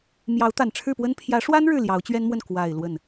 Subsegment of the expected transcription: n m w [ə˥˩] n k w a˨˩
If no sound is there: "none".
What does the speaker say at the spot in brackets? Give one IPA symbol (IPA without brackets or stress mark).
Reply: ə˥˩